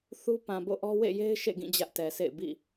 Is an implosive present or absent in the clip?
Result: absent